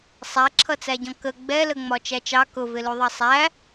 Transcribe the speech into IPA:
sˤ æ ǁʰ ʌ t͡s æ ɟ ɔ̃ k ə ɡ͡b ɛ l ə ŋ͡m ɒ t͡ʃ æ t͡ʃ ɑ k ʊ v ɪ l u ðˤ ʌ sˤ æ

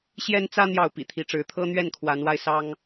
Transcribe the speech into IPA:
ɕ j ɛ˦ n t͡s ä˦ n̪ j ɑ˥˨ ʊ̯ p ḭ˨˩ t̪ʰ i˨˦ ʈ͡ʂ ɻ̩˨˦ t̪ʰ ɤ˦ n̪ ɥ ɛ˥˨ n kʰ w a˨˦ n w a˧ ɪ̯ s ɑ˦ ŋ

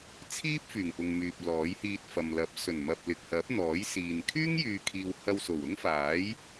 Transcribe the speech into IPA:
t͡sʰ iː˥ p̚ f yː˨˩ ŋ p ʊ˨ ŋ m yː˨ p̚ l ɔː˨˥ j h iː˧ t̚ f ɐ˨ m l ɐ˨˥ p̚ s ɵ˨˩ n m ɐ˨ p̚ l ɪ˨ k̚ h ɐ˨˥ p̚ n̪ ɔː˨˥ j s iː˨ n kʰ yː˥ ŋ j yː˨ kʰ iː˨ w h ɐ˧ w s o˨˩ w ʊ˥ ŋ f aː˨˥ j

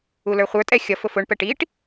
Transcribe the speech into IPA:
u l ə˞ χʷ ə˞ tʼ ɛ xʲ ʌ f ʊ f ʊ ɳ p ɛ ʈ i ʈ

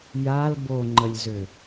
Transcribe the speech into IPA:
j a l b o ŋ͡ǃ ə lʲ z ø

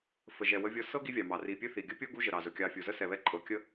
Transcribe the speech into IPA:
f ə˩ ʒ ɛ˩ w ə˦ vʲ ɤ˦ s ɤ˥ ɡ i˦ vʲ ɑ˩ m ɑ˩ r i˨ pʲ ɵ˥ θ i˩ ɡʲ ə˥ pʲ o˥ ɡ u˥ ʒ ə˩ ɾ ɑ˩ z ɵ˩ kʲ ɑ˨ fʲ u˩ z ə˥ s ɛ˨ β ɛ˦ ǃʼ ɤ˨ kʲ ə˥

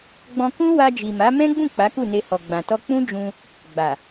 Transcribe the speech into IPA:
ɡ͡b ɔ̃˧ k ũ˦ w a˧ d͡ʒ i˨ m a˨˦ m ɛ̃˦ ɡ͡b ũ˦˨ k͡p a˨˦ k u˦˨ n e˧ h ɔ˨ ɡ͡b ã˨ t ɔ˧ k͡p ũ˦ d͡ʒ ũ˧ | ɡ͡b a˨

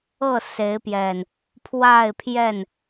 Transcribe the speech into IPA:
ɤ˥˨ s e˨˦ ɪ̯ p j ɛ˨˩ n | pʰ w a˥˨ ɪ̯ pʰ j ɛ˥˨ n

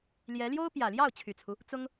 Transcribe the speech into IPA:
l j ɛ˧˥ l j o˥ ʊ̯ p j ä˨˩ l j ɑ˥˩ ʊ̯ t͡ɕʰ y˨˩ t͡sʰ u˦ | t͡s ʊ˥ ŋ

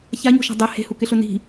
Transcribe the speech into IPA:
ç a ɲ o̤ ʃ a̤ dˤ ɛ h e̤ h u k ɪ ɬ ʊ n i̤

